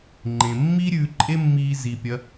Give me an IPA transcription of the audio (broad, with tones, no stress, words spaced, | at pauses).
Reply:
ŋ͡ǃẽ˩mːi˥ ɾʲʉː˧ǃʼe˥mːiː˧ zi˩pʲɐ˩˧